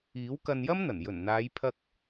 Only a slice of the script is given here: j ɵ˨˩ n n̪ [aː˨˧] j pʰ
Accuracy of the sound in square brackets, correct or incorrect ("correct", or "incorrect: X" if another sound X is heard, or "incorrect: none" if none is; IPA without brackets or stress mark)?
correct